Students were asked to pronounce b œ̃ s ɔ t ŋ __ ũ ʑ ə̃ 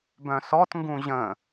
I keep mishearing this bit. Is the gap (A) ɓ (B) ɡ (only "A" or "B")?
B